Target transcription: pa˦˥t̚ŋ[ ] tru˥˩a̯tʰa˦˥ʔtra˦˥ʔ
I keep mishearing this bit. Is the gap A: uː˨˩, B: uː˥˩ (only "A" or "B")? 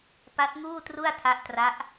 B